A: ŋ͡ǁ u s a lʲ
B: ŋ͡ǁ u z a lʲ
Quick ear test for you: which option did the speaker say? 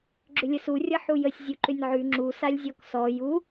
A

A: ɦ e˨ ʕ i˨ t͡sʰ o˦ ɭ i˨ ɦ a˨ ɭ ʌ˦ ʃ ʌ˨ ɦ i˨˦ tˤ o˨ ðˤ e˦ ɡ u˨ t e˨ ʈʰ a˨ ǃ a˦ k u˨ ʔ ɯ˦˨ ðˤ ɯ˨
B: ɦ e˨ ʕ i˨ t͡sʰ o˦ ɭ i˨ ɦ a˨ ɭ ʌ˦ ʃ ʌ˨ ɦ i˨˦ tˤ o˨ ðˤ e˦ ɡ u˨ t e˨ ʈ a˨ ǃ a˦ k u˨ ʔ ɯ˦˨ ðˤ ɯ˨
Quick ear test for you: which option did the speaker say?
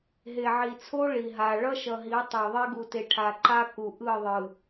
A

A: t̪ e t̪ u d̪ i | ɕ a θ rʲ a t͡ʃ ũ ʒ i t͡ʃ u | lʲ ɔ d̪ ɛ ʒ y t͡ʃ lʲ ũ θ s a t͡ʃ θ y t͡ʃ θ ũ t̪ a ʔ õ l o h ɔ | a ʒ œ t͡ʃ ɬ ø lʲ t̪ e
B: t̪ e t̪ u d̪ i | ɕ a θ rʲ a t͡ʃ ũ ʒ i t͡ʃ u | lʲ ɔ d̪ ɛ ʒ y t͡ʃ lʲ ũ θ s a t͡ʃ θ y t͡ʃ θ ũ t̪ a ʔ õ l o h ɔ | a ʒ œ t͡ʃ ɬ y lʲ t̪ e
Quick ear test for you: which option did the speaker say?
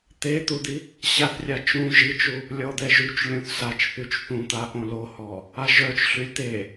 B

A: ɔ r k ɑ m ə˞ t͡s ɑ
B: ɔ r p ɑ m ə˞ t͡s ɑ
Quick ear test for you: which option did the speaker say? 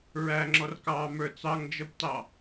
A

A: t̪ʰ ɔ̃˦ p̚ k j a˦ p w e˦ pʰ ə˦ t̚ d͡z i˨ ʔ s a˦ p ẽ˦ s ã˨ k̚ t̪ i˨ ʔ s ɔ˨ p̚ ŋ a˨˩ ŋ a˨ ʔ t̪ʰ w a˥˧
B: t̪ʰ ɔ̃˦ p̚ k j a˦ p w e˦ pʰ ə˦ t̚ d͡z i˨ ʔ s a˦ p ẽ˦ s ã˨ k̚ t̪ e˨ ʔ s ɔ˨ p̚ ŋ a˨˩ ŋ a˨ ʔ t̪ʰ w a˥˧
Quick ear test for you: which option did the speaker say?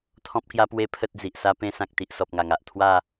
A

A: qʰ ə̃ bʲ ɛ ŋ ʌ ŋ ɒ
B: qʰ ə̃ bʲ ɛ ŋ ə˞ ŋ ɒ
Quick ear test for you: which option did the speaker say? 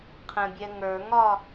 B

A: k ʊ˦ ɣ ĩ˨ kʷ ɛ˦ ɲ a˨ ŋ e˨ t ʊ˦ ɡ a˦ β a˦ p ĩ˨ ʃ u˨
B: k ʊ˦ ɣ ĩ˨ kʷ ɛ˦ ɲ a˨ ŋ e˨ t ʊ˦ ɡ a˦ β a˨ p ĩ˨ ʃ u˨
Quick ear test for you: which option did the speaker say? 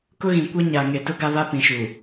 A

